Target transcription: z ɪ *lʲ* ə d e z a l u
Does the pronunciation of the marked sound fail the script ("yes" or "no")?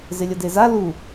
no